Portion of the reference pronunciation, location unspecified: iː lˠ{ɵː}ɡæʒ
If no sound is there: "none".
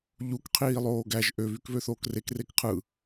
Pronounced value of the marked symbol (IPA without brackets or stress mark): oː